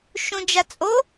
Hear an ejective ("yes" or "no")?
yes